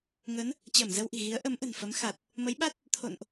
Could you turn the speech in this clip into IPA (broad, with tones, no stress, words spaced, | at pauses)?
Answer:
ŋə˨˦n | t͡ɕəː˧˩mzə˧wʔi̤˨˩ ɣi˨˦ə̯ ʔə˨˦mʔə̤˨˩n fə˨˦mxa˨˩t̚ | mə˨˦jɓa˦˥t̚ | t̪ʰo̰˧˨nʔ